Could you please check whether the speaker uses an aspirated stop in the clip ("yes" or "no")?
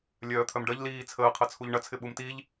yes